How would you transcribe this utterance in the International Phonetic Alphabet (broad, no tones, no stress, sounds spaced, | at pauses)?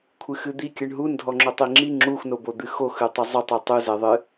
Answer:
kʷʰ ɨ x ɨ d̪ i kʲ ɨ ɳ ɦ u n dʱ ɔ ŋ͡ǁ o tˤ i ŋ͡ǁ i ŋ͡ǁ u x n o b o d̪ ɨ x o x ɨ tˤ ɨ zˤ o tˤ ɛ tˤ u z ɛ ðˤ ɨ